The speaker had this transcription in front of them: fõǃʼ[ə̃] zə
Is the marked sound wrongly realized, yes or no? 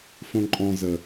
yes